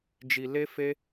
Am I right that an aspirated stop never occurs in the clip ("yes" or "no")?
yes